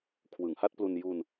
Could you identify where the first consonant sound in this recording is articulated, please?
velar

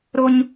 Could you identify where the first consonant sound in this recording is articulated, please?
alveolar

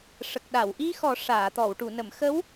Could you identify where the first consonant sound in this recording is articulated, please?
retroflex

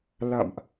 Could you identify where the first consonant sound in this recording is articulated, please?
alveolar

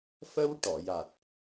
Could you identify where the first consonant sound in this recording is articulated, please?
labial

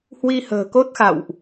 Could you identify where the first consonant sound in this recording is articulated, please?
glottal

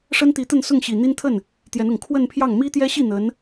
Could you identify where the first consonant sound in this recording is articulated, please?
retroflex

